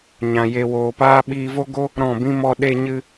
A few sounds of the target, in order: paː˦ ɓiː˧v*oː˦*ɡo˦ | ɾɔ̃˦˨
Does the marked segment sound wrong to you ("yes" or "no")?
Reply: yes